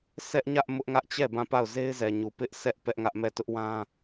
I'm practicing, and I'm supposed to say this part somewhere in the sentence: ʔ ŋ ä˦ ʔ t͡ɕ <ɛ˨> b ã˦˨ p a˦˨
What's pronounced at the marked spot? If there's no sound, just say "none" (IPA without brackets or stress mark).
ɛ˦˨